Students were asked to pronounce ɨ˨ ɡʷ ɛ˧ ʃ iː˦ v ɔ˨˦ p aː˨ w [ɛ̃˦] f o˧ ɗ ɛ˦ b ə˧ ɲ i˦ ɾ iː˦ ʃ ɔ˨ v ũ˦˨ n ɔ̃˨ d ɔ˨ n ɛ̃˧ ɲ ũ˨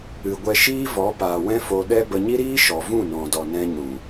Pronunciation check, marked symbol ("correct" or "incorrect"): correct